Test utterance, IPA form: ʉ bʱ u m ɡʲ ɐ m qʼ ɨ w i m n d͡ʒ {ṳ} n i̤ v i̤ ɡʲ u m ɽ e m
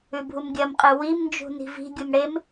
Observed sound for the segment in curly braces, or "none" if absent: ṳ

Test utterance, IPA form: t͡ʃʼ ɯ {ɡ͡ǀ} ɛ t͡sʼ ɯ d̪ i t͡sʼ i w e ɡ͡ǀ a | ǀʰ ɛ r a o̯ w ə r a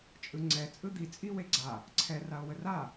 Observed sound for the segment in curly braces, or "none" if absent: ŋ͡ǀ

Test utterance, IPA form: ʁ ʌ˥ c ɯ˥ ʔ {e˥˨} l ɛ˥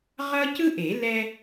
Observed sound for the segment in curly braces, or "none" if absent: e˨˩˦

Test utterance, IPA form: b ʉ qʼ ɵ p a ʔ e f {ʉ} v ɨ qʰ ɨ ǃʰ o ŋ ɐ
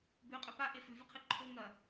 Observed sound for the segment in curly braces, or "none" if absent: ʉ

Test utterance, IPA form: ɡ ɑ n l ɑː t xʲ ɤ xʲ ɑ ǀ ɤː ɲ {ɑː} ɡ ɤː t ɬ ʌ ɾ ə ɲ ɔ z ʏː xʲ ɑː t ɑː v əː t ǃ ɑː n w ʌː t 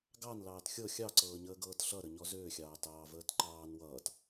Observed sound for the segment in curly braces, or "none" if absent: əː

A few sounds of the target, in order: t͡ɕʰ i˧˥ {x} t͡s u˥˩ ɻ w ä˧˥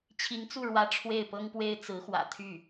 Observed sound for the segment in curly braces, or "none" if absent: ŋ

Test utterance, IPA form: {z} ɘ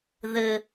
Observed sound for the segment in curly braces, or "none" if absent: ð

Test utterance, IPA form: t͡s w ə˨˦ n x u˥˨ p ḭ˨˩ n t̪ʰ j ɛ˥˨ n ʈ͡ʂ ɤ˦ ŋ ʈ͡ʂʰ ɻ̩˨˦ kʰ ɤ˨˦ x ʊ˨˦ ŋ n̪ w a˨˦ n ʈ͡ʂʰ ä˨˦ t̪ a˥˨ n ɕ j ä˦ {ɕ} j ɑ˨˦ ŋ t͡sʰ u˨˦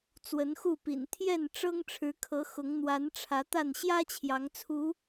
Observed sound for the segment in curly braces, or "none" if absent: t͡ɕʰ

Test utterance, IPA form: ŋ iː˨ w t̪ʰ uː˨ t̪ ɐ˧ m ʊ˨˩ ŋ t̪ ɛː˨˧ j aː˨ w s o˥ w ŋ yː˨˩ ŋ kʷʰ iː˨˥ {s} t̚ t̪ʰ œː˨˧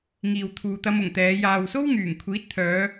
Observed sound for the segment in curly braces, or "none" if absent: none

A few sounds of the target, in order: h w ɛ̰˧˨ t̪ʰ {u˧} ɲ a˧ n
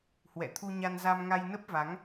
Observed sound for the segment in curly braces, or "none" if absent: u˧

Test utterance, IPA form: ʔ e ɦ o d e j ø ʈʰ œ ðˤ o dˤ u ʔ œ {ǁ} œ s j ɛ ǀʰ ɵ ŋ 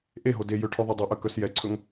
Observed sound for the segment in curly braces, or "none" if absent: k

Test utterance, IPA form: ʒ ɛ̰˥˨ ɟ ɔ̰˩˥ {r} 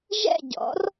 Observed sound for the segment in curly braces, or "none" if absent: r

